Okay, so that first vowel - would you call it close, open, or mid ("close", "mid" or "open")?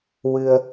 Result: close